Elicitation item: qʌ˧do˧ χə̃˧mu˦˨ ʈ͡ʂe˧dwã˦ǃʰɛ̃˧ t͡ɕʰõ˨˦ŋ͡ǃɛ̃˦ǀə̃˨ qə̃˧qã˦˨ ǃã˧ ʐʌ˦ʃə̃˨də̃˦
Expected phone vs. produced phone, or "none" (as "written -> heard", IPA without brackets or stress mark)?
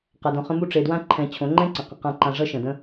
o˧ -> õ˧